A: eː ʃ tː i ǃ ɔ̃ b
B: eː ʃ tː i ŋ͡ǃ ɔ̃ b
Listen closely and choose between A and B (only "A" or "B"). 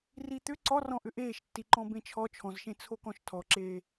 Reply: A